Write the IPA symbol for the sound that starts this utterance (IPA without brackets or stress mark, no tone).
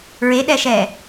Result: ɹ